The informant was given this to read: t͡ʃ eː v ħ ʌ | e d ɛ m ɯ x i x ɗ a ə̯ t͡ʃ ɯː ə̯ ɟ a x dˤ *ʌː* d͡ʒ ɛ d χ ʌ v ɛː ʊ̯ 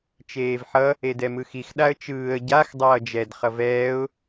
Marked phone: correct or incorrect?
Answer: correct